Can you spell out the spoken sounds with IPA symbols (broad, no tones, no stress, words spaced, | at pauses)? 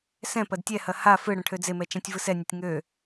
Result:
sɛ̃pɐd tʲɛhɐ ha fɯɽɐ̃ ʈʰød͡zemɛ t͡ʃɛ̃tʲvɯsɛnʲətʲ ŋø